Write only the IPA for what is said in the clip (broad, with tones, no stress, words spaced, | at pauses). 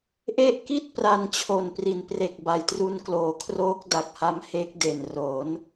ʔe˦˥ʔki˥˩t̚ pra˧n t͡ɕʰo˨˩npri˨˩npre˨˩k̚ ba˨˩jtru˧n kloː˩˦kʰroː˦˥k̚ da˨˩k̚ha˧m he˦˥k̚de˨˩nro˩˦n